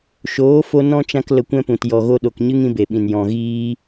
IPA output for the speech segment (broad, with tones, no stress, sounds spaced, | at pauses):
ʃ oː˨˦ f o˧ n ɔ̃˦ t͡ʃ ã˦ k l ə˧ kʷ ɛ̃˦ p ũ˨ t j ɔ˨ ɣ o˧ ɗ o˨ k ɲ ɨ˦ ŋ ĩ˦ b e˨ ɓ ĩ˨ n j ɔ̃˨ ɣ iː˧